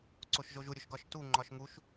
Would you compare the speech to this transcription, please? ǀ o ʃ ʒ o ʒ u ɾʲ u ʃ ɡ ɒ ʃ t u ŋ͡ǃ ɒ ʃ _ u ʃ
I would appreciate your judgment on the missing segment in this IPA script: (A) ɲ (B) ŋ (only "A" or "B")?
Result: B